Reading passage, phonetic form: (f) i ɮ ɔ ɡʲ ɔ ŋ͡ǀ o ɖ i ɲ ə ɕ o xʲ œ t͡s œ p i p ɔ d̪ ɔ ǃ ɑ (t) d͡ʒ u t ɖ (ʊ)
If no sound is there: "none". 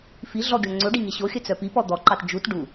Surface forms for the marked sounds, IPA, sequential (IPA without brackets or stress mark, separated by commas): f, t, u